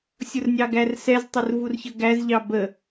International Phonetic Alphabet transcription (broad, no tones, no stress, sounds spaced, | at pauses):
sʲ ʊ r nʲ ɑ ɡ æ r s ɛ z tˤ ə r v u r ç ə ɡ æ z ʎ ɑ b ə